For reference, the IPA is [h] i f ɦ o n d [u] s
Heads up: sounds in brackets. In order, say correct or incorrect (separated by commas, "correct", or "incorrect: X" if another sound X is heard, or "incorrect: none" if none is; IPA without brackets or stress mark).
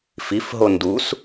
incorrect: f, correct